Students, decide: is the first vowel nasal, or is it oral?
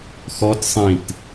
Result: oral